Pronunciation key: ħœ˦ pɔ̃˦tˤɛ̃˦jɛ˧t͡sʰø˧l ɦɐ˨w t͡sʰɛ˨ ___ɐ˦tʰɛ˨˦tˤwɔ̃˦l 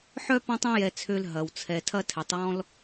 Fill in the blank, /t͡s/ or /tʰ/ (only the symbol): tʰ